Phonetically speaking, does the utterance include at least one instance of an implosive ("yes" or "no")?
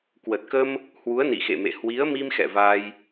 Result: no